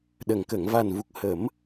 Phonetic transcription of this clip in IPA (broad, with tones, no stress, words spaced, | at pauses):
ɗə˨˩ŋ kə˨˩˨ŋva˨˩nvu˨˩k̚hə˨˩˦m